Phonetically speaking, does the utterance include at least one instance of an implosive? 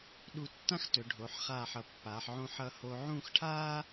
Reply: yes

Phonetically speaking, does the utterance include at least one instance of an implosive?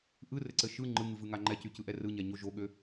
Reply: yes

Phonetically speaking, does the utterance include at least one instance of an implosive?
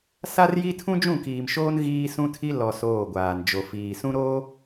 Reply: no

